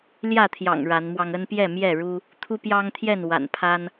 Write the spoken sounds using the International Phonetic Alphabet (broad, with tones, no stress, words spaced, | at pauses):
ljä˥˨t̪ʰjɑ̰˨˩ŋ ɻa˨˦nmwɑ˧ŋ ə˦npjɛ˥˨mjɛ˥˨ɻu˦ | t̪ʰu˦pjɑ˦ŋt̪ʰjɛ˥˨n wa̰˨˩npʰa˦n